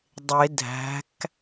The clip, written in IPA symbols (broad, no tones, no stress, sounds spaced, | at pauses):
dˤ e dʱ æ̤ k